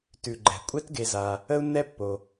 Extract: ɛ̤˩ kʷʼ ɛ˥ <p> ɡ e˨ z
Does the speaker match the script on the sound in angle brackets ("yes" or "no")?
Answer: no